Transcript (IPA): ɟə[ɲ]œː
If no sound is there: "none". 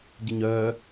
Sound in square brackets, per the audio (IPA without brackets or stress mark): ɲ